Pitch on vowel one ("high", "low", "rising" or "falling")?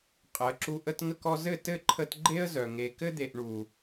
rising